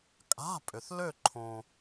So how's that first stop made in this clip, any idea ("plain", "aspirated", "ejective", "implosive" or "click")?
ejective